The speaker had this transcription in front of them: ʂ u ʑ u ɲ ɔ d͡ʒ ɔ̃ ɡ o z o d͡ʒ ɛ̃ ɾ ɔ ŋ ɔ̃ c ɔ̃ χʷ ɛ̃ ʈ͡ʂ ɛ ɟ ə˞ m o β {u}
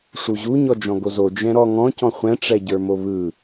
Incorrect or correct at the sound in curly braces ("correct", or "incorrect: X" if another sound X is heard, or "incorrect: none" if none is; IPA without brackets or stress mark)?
incorrect: ɯ